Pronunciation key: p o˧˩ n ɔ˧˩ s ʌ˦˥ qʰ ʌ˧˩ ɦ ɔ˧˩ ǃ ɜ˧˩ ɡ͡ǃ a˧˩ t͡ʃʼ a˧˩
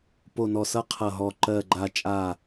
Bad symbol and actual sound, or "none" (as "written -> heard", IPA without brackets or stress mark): none